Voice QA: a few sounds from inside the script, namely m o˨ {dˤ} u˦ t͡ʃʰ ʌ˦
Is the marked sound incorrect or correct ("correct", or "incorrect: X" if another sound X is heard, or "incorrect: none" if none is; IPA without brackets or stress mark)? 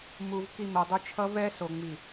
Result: correct